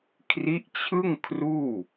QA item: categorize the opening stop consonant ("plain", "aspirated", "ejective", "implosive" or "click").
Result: aspirated